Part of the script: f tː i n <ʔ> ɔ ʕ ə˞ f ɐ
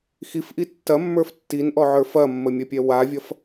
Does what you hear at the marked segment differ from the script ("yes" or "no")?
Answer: no